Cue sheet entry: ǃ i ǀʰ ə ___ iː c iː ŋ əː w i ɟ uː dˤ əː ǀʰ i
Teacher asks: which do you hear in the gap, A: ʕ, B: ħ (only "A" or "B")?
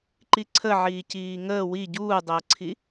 A